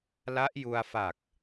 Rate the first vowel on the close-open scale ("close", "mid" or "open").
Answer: open